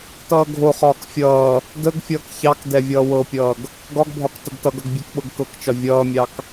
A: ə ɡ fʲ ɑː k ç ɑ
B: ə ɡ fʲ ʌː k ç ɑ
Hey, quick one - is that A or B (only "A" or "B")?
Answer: B